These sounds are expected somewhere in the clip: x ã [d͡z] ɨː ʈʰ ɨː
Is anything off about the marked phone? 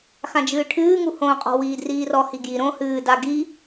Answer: yes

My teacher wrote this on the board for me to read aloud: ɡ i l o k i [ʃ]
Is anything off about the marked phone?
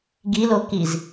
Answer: yes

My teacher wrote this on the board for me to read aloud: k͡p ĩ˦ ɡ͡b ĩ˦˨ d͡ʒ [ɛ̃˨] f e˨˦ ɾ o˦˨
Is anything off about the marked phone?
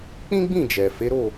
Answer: yes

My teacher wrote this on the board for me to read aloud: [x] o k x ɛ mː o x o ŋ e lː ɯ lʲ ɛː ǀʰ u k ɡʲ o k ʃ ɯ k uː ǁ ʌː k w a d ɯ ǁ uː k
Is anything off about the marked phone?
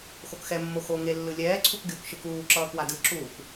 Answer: no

